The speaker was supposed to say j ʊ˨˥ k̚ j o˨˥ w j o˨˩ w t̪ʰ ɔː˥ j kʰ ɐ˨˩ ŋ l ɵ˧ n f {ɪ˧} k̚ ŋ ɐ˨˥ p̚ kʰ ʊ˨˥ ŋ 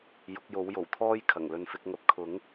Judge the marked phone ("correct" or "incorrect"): incorrect